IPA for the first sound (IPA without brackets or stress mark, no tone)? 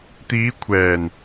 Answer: t̪